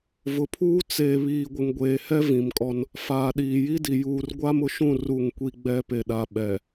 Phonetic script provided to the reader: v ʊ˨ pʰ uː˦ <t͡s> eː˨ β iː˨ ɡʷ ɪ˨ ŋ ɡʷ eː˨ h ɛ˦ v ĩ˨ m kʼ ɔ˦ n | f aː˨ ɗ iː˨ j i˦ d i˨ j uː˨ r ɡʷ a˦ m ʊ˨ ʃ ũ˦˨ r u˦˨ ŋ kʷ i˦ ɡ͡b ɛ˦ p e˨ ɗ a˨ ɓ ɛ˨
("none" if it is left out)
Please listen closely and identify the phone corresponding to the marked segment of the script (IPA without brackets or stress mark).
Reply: t͡s